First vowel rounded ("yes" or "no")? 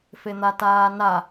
no